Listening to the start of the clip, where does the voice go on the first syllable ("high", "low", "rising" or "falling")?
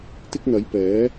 high